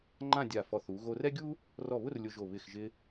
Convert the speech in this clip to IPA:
ŋ͡ǃ ã˥˧ dʲ a˧˩ f ɔ˧˩ θ u˩˧ ɣ o˧ r ɛ˥ ɡʲ u˥ | r ɔ˧˩ β ʊ˥˧ r lʲ ʊ˧ ʒ o˧˩ β ɪ˧˩ x ʒ ɪ˧

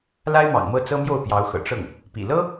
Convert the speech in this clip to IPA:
l a˥ ɪ̯ m ɑ̰˨˩ ŋ m ɤ˥˩ t͡s ɤ˥ m j o˥˩ ʊ̯ p j ɑ˧˥ ʊ̯ x ɤ̰˨˩ ʈ͡ʂ ɤ˥˩ ŋ | p ḭ˨˩ l ɤ˥

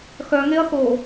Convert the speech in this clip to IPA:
x œ ŋ e ɐ̯ x o

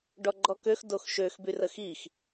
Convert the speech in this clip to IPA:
ɖ ɔ ɡ͡ǃ ɔ k ø x d o x ʃ ø x b y r ə x i x

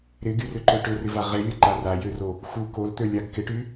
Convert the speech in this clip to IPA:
ɾ ɪ ɡ y r ʏ ǃ ø ʈ ʏ r ɪ v a ʁ e lʲ ʊ ǃ a r a j ø r o | x u k o l t̪ ø lʲ a ɡ k ɪ ʈ y

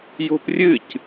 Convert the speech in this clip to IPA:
j o̤ p rʲ ɨ c

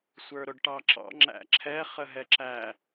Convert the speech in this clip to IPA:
sʷ ə˞ ɾ ʊ ɖ ʈ ɑ ǁ ɑ̰ ŋ͡ǁ æ̰ ǁʰ ɛ χ ə ɦ ɛ ǁ æ

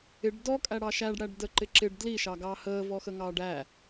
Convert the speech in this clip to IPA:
ɪ ɖ d ɔ kʼ æ ɽ ɑ ʃ æ ɖ ɽ æ ɖ d ə ǃ ɪ ǁ ɪ ɖ d l i ʃ ɑ ɡ ɑ h əː v ɔ x ə ŋ ɑː ɖ æ

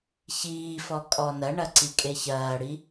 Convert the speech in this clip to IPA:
ç iː f ɔ kʼ ɔ n ɐ ɳ ɐ ǀ i kʼ e ç ɐː ɽ i

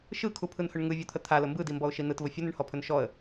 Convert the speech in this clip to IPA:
ʃ ɯ kʰ u pʰ ɯ n h ɵ ɳ ŋ ɯ vʲ ɔ t̪ʰ ə t̪ʰ a l ə m b ɯ d i m b ɔ ʊ̯ ʃ i n ɯ t v ə fʲ ə n ɯ ɳ h ɔ pʰ ɵ n ʃ ɔ ə̯

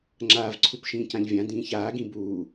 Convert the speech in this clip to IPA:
ŋ͡ǁ aː v ǀʰ u p ʃ ĩː c ã ʎ vʲ ã d ĩː ç aː ɡ ĩ b uː

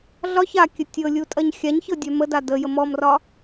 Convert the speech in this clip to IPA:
ɮ ɒ ç a kʲ ə tʲ ɤ lʲ u tʼ ɐ ɲ xʲ a ɲ ç ɤ dʲ œ m ə d a d ə j ə m ɔ m r ɒ

